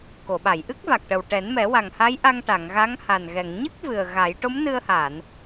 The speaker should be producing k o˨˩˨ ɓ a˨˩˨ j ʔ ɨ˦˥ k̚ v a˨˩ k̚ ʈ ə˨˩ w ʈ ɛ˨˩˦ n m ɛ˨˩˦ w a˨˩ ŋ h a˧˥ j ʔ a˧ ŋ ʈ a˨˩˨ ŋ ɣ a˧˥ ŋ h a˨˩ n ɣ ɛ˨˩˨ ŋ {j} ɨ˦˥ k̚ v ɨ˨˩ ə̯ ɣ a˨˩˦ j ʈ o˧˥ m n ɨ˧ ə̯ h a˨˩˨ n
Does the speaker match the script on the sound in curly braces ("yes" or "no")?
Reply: no